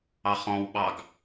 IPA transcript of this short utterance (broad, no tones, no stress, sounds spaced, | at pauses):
ɑ χ ɔ̃ w ɓ ɑ ɡ